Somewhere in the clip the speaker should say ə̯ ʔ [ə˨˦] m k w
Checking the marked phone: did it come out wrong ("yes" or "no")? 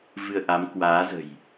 yes